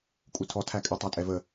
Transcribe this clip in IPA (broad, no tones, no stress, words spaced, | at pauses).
kʼutʰɔ tʰækʼɪ tˤætʼɛvə